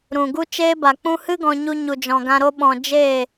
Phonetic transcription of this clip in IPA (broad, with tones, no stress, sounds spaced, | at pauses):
ɾ ũ˨ ɡ u˦ t͡ʃ eː˦ b a˨ k͡p ũ˧ h ɨ˦ ɡ ɔ̃˧ ɲ u˧ ɲ u˨ d͡ʒ ɔ̃˨ ɡ ã˧ ɾ o˧ ɓ ɔ̃˨ d͡ʒ eː˦˨